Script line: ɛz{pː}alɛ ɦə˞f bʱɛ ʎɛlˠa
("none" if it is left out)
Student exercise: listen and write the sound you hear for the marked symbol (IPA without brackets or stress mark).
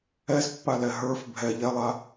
pː